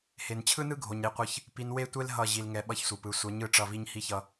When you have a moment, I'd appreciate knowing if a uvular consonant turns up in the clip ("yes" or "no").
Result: yes